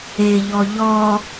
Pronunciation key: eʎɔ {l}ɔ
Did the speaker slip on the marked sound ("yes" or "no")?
yes